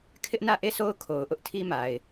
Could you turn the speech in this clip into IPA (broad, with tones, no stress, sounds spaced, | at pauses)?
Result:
kʰ ɪ˦ ʔ n ä˦˨ ʔ e˦˨ sʰ o˦ ʊ̯ kʰ o˨ ʊ̯ ʔ ʊ˦ ʔ tʰ i˦ m a˨ ɪ̯